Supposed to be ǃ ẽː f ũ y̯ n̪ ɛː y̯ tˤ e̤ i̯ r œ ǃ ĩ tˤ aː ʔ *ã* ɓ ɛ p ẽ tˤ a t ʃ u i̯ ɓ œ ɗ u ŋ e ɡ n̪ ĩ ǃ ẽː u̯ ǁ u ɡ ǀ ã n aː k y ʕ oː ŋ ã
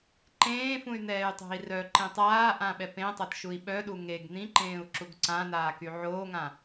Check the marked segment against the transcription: correct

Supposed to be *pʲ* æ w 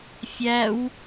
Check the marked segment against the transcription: incorrect: fʲ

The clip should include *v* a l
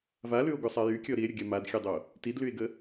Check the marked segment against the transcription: correct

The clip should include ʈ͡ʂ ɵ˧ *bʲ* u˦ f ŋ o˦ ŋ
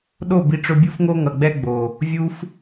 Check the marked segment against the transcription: correct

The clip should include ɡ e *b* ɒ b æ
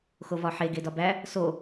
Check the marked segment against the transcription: incorrect: d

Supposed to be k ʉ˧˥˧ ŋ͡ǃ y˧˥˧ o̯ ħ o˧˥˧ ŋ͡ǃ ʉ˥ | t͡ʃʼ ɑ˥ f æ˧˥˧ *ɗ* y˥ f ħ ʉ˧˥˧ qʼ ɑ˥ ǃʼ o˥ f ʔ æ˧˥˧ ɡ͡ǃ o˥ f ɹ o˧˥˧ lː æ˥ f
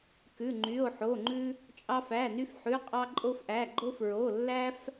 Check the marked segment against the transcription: incorrect: n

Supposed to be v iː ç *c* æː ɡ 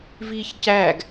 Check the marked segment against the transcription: correct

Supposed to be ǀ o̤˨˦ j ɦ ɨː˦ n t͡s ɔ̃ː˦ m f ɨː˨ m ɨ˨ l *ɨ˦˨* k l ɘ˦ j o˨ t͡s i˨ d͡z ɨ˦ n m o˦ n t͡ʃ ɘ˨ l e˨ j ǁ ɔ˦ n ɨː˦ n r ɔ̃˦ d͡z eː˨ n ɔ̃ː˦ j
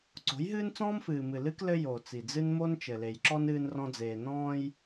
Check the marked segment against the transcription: incorrect: ɨ˦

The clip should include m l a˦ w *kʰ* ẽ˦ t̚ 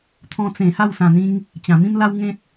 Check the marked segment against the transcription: incorrect: ŋ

